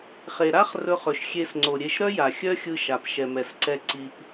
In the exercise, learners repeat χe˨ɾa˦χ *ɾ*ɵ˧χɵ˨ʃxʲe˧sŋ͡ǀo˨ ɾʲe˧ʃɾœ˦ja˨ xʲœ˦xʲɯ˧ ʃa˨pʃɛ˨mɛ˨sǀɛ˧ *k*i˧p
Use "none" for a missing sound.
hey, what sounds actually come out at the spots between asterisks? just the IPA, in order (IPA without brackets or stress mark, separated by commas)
r, ǀ